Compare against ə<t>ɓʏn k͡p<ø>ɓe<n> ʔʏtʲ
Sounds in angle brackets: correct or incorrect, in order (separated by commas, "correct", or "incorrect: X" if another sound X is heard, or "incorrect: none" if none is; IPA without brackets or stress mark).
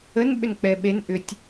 incorrect: n, incorrect: ɛ, correct